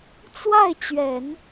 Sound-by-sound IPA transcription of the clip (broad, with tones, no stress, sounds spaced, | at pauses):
t͡s w a˥˩ ɪ̯ t͡ɕ ɥ ɛ˨˩˦ n